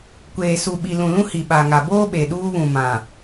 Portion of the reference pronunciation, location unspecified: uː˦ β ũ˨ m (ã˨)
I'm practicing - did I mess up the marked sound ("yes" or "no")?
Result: no